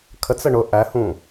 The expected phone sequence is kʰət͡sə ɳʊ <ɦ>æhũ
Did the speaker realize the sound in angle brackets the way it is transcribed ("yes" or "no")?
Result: no